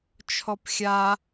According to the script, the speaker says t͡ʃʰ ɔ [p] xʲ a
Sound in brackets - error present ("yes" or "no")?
no